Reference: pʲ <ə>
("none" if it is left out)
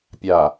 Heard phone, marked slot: a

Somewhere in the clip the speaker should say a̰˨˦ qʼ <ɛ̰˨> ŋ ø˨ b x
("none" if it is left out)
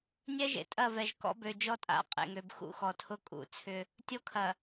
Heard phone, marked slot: ḛ˨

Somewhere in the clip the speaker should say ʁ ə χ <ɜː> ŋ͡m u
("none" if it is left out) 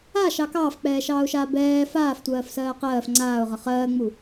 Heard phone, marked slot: ɜː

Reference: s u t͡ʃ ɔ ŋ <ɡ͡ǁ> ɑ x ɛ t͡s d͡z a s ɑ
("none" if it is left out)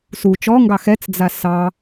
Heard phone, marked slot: ɡ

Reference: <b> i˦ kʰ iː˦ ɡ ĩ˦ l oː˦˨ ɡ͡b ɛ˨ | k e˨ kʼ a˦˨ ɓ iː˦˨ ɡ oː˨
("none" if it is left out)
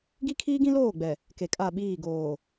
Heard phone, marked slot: ɡ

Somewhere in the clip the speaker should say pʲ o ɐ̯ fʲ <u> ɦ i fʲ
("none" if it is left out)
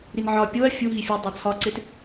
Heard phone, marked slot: u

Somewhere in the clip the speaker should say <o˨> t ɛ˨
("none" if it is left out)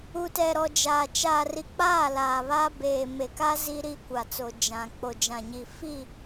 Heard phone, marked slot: u˨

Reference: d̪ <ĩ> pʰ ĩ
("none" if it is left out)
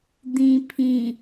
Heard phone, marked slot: ĩ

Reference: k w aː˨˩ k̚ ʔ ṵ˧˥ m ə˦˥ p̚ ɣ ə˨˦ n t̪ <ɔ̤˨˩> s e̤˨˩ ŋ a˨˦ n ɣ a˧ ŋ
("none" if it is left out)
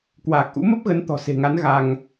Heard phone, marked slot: ɔ̤˨˩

